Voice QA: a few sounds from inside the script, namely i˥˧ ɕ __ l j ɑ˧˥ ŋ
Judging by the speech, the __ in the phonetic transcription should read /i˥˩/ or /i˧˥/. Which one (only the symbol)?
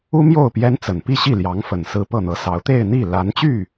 i˥˩